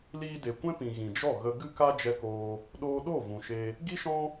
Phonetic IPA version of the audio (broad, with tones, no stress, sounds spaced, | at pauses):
l iː˧ d e˨ kʷ ɛ̃˦ p ĩ˨ ɣ ĩ˨ d͡ʒ ɔ˦˨ ɣ ə˧ ɡ ɨ˦ k a˦ d͡ʒ ɛ˧ k oː˧ | ɗ oː˧ ɗ o˦˨ v ũ˨ ʃ e˧ | ɡ i˦ ʃ ɔ̃˦